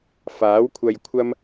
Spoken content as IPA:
f aː˨˥ w kʷʰ ɐ˧ j kʷʰ ɐ˥ m

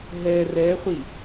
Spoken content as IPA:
ɦ ɛ r ɛ χʷ i

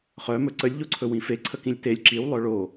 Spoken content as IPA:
χ œ m ɵ ǀ ə lʲ ʎ o ǀʰ ɵ w ĩ f e ǀʰ ə k ĩ lʲ t e lʲ ǁ i w lˠ œ ɭ o

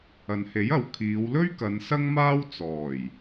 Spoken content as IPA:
ɐ˨ n h e˨˥ j ɐ˨˧ w kʰ iː˨˧ w l ɵ˥ ɥ k ɐ˨˧ n s ɐ˥ ŋ m aː˥ w t͡s ɔː˨˩ j

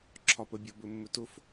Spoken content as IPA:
ǁʰ ɒ p ə bʲ ɒ b ɵ mː ɵ t ʊ f

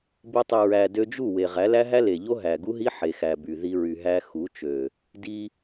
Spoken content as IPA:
b i˧ tˤ i˨ ɹ æ˨ d ø˧ d͡ʒ u˦˨ w e˨ ʁ æ˨˦ l æ˦ ɦ æ˦ l e˨ ʎ o˦ ɦ æ˨ ɡ u˦ ɦ i˦ ħ e˨ x æ˨ b y˨ ð i˧ ɹ y˨ ɦ æ˧ x u˨˦ t͡ʃ ø˨ | d i˧

